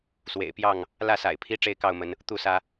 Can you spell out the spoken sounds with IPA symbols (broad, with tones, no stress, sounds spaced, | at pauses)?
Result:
s w ḛ˨˩ ɪ̯ p j ɑ˥˨ ŋ | l ä˥˨ s a̰˨˩ ɪ̯ pʰ i˦ ʈ͡ʂ e˥˨ ɪ̯ k ɑ˥˨ ʊ̯ m ə˨˦ n | t̪ u˥˨ s ä˦